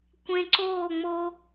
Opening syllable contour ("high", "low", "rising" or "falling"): low